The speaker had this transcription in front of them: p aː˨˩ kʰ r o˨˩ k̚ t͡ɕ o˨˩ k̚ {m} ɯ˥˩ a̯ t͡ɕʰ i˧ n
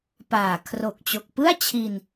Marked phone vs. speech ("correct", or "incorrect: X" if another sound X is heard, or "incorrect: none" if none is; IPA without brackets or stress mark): incorrect: p